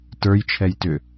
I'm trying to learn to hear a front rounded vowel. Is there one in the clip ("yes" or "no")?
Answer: yes